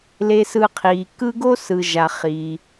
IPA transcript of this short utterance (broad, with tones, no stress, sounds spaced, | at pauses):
l e˨ s ɯ˨ qʰ i˩ k ɯ˦ ɡ o˥ s ɯ˩ ʒ a˩ χ iː˩